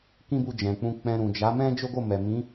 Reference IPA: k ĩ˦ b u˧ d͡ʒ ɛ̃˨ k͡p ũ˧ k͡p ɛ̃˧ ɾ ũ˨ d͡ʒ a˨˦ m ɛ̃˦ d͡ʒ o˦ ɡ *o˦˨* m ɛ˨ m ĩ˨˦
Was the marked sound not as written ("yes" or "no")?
no